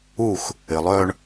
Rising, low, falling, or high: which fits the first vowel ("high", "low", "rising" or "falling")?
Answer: falling